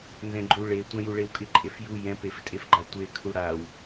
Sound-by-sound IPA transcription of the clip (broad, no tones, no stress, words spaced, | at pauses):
nzɛ̃ɡ͡ǃu ɭe tʷɛ̃juɭewkʼɪ ǃʼefju jɛ̃pef tʼefɡ͡ǃatʷe kʰuɽaw